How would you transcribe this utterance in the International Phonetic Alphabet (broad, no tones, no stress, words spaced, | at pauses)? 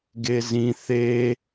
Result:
ɡezĩ θe